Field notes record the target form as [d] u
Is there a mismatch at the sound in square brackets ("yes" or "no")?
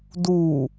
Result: no